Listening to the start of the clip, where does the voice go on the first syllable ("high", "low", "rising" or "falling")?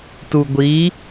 low